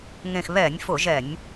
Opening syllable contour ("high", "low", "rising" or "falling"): low